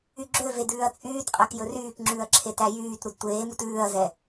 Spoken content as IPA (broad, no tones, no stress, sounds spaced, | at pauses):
y ɡ͡ǁ ø v e d ʉː ɐ̯ t͡sʼ yː t qʼ æ k j ɵ r yː k ŋ͡ǁ ʉː ɐ̯ ǁʰ e t æ j yː t ɾ u d tʷ eː m u t ʉː ɐ̯ z ɛ